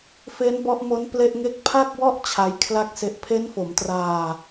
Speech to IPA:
f e˦˥ n b ɔ˦˥ ʔ m o˦˥ n p l e˥˩ ʔ ŋ e˥˩ k̚ pʰ a˥˩ k̚ w ɔ˥˩ ʔ t͡ɕʰ a˦˥ j kʰ l a˥˩ k̚ s e˦˥ ʔ pʰ e˦˥ n f o˩˦ m t r aː˧

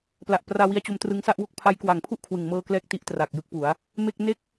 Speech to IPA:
p l a˨˩ ʔ p r aː˧ w i˧ a̯ t͡ɕ o˧ m t r ɯ˧ ŋ s a˥˩ ʔ w o˥˩ k̚ pʰ a˦˥ j k w aː˨˩ ŋ pʰ u˥˩ ʔ kʰ w ɯ˨˩ ŋ m ɤː˧ k l ɛː˥˩ k̚ t i˦˥ ʔ t r aː˨˩ k̚ j ɯ˦˥ k̚ p u˩˦ a̯ | m e˥˩ k̚ n e˥˩ k̚

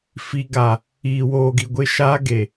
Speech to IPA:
f i˨ ɡ a˨ | iː˨ w oː˨ ɡ i˨ ɡʷ ɪ˦ ʃ aː˦ ɡ e˨

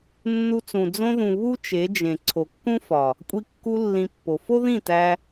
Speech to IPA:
nː u˧ t͡s ũ˨ d͡z õ˧ ð ũ˨ β u˦ t͡ʃ e˨˦ d͡ʒ ẽ˨ ǀʰ o˨ kː ũ˦ f ɒ˨ | kʷʼ i˧ kː u˧ lː ĩ˧ pː o˨ f o˦ ð ĩ˦˨ t æ˧

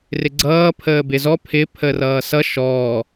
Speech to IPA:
r ɪ ɡ͡ǀ ʌː pʰ əː b ɪ z ɔ pʰ ɪ pʰ ə r ʌː s ʌ ʃ ɔː

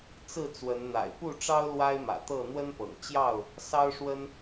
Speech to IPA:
t͡s ɹ̩˥˨ t͡s w ə˨˦ n n̪ a̰˨˩ ɪ̯ p u˥˨ ʈ͡ʂ ɑ˦ ʊ̯ l w a˦ ɪ̯ m ä̰˨˩ t̪ ɤ˥˨ n̪ w ə˦ n p ɤ̰˨˩ ŋ t͡ɕ j ɑ˥˨ ʊ̯ | s ɑ˦ ʊ̯ ʂ w ə˦ n

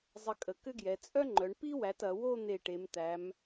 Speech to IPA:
zˤ ə˧ kʼ ə˩˧ k ʏ˥ ɡ j ɛ˩˧ t͡sʼ œ˥ ŋ͡ǃ œ˩˧ ɳ p i˥ w æ˩˧ t ɐ˩˧ w o˥˧ n̪ e˧˩ ʈ e˩˧ m t̪ æ˩˧ m

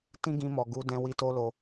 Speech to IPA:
t ĩ˦ ɡ ĩ˧ m ɔ˨ ɡ u˨˦ d ɛ̃˧ w i˧ t o˦ l o˧

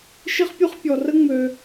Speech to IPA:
ʃ i˥ χ pʲ u˥ χ pʲ ɔ˨ r ə˥ ŋ͡m ø˨

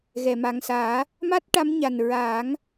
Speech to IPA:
ɣ ɛ˨˩˨ m a˨˩ ŋ s aː˨˩˦ | m a˦˥ t̚ ʈ a˧˥ m ɲ a˨˩ n ɹ aː˨˩˦ ŋ

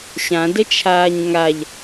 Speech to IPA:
ɕ ã d ə t͡ʃʰ aː ɲ ŋ a ʎ

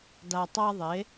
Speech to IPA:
d a˧ tˤ a˥ ðˤ e˩˥

